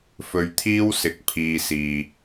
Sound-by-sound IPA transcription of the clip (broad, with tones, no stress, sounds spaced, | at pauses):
f ɵ˧ ɥ t̪ʰ iː˥ w s ɪ˨˥ k̚ pʰ iː˨ s iː˨